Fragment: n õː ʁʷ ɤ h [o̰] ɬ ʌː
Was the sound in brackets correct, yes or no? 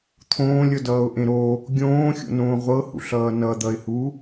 no